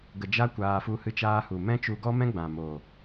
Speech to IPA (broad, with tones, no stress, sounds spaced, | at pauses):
ɡ ə˧ d͡ʒ a˦ kʷ aː˧ f u˧ h ɨ˧ t͡ʃ aː˧ h u˨ m ɛ̃˦ t͡ʃ u˧ ɡ ɔ˦ m ɛ̃˦ ɡ͡b ã˨ m o˨